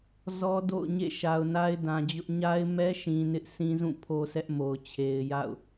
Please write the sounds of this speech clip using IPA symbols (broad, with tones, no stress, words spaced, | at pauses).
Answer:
zɔ˦do̰˦˨ʊ̯ɲḛ˦˨ ʃa˨ʊ̯na˦ɪ̯dã˨d͡ʑʊ˦ʔ ɲa˦ɪ̯mɛ˦ʃĩ˨ nɪ˦ʔsĩ˦zũ˦˨ pʰo˦sɛ˦ʔmo˨ʊ̯ t͡ɕʰe˨ɪ̯ja̰˦˨ʊ̯